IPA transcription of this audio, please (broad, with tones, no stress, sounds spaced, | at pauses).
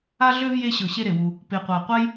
a˥ ɮ ø˥ v j e˦ ɕ ɤ˨ ɕ e˦ ɾ e˩ w u˨ | p e˨ qʷ a˨ qʷ a˥ j